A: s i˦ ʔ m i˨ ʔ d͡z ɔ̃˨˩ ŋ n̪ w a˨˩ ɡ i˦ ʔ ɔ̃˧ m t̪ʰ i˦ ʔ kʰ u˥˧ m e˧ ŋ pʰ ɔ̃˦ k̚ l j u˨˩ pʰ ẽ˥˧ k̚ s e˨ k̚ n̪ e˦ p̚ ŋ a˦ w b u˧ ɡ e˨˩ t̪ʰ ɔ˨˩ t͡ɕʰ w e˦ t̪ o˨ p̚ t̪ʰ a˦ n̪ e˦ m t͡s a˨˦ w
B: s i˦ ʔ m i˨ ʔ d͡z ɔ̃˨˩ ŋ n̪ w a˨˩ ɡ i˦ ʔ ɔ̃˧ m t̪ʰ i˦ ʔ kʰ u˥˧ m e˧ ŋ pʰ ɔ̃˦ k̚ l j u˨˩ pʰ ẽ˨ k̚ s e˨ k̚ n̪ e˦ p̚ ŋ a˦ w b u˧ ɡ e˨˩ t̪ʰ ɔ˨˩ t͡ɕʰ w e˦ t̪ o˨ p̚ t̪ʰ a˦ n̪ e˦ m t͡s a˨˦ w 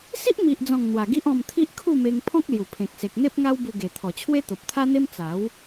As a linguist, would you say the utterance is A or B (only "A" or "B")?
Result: B